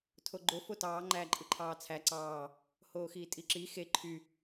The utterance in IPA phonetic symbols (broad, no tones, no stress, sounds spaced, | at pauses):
tʰ o ɡ͡ǃ o f o t ɑː ŋ͡ǃ æː ǃʼ ɯ ǃʰ ɑː t͡sʰ æ ǀ ɑː | h oː x iː tʼ i ǁ i x e ǃʰ y